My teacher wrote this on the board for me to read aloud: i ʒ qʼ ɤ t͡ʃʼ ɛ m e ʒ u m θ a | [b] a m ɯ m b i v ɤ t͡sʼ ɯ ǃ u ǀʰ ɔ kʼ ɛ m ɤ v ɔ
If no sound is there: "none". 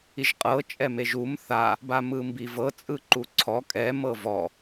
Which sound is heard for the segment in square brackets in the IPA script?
b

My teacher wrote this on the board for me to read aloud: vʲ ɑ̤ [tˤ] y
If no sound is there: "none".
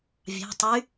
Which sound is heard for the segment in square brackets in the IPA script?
tˤ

